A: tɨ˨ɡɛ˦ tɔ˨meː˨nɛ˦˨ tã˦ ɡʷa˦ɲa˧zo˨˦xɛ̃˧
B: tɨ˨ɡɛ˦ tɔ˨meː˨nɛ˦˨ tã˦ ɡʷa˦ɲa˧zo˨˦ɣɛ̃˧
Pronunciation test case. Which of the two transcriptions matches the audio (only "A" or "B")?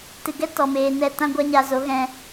B